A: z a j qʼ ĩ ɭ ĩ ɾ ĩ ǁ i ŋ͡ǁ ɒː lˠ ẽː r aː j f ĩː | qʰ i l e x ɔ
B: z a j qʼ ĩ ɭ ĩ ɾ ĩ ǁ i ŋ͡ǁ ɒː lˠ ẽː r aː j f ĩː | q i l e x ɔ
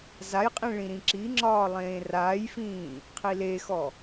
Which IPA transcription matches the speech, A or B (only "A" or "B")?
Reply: A